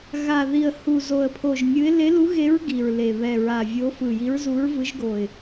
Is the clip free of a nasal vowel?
yes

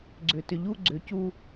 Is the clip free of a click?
no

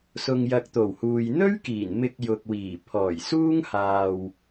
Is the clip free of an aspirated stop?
no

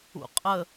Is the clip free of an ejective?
no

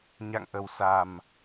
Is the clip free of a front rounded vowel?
yes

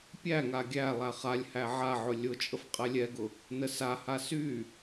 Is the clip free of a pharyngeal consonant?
no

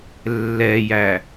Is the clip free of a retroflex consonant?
yes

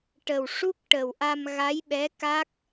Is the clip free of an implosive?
no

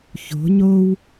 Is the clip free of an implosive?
yes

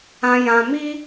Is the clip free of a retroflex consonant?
yes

